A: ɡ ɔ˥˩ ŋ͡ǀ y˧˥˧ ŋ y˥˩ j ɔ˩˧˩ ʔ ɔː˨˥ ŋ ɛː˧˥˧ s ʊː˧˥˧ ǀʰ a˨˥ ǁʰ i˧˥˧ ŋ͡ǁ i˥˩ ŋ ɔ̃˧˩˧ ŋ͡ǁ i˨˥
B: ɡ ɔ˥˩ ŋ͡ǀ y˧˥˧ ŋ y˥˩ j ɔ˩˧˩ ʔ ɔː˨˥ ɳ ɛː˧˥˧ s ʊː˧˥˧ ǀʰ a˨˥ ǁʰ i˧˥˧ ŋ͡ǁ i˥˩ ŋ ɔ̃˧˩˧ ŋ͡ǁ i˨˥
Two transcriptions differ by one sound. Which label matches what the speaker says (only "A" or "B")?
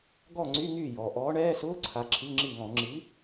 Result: B